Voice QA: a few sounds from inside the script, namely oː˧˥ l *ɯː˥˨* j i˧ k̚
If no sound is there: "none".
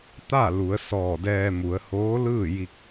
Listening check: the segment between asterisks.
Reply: ɯː˥˨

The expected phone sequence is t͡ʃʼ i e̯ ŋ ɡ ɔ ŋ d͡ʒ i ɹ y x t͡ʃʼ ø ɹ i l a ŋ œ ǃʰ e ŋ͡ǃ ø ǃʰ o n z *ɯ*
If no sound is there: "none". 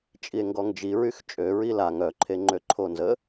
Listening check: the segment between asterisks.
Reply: ə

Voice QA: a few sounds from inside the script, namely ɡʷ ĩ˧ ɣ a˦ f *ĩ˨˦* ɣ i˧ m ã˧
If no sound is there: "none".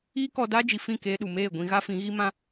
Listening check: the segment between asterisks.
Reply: ĩ˨˦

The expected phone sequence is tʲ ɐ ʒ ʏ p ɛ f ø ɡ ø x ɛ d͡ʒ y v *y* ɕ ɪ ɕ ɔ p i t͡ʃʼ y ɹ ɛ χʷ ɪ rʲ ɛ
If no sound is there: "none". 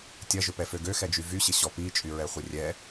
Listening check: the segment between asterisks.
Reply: y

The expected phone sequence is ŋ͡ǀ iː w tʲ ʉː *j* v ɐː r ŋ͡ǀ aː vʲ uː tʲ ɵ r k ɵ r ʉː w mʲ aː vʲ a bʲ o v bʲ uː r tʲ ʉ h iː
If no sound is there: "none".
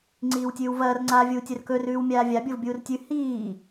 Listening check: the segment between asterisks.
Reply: w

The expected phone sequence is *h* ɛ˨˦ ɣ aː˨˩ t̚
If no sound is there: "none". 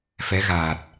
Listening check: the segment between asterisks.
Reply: f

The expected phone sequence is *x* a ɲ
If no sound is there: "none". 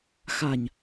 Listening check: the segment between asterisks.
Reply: x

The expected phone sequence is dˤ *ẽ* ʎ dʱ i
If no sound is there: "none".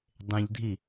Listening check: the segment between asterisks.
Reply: ẽ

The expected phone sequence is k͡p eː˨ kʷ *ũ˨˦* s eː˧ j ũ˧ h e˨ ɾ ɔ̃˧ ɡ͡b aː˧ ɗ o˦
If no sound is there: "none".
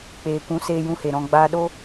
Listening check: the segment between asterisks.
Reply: ũ˨˦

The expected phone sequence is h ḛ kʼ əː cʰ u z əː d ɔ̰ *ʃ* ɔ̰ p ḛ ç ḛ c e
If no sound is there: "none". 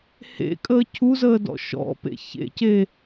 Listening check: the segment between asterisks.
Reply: ʃ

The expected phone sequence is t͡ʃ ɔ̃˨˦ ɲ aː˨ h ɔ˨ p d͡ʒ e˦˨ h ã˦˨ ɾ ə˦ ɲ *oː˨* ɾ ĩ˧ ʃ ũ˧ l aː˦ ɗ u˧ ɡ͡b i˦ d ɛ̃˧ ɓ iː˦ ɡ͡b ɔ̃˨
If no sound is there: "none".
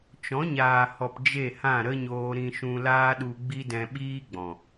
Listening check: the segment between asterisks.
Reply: oː˧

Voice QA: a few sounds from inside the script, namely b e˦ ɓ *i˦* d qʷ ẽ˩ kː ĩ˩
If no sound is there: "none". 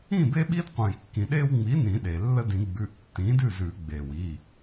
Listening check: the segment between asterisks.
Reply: i˦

